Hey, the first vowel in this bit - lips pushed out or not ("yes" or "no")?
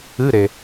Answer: no